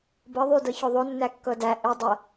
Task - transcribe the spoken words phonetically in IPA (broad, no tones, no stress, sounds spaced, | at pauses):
b ɤ ðˤ y d ɤ ç o ðˤ o nː æ kː ɤ d æ ʔ ʏ dˤ ɤ